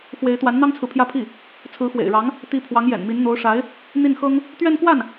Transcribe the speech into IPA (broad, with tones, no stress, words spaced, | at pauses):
xwe˧˥ɪ̯t̪wa˧˥nn̪ɑ˥ŋt͡sʰɹ̩˨ pʰjä˥˧pʰi˥˩ | t͡sʰɹ̩˧˥xwḛ˨˩ɪ̯ɻɑ˧˥ŋ | t̪i˧˥ pʰwɑ˧˥ŋjɛ̰˨˩nmi˧˥n n̪o˧˥ʊ̯ʂa˧˥ɪ̯ | n̪i˥˩nxɤ˥ŋ | t̪ɥɛ˥˧nkwa˥˩n